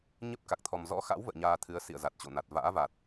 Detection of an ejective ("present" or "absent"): absent